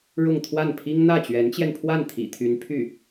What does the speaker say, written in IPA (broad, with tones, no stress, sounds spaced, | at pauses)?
ɻ ʊ˥˧ ŋ t̪ʰ w a˥˩ n pʰ i˥ ŋ n̪ ä˥˩ t͡ɕ ɥ ɛ˧˥ n t͡ɕ j ɛ˧ n pʰ w a˥˩ n t̪ʰ ḭ˨˩ t̪ʰ y˧˥ n pʰ y˥˩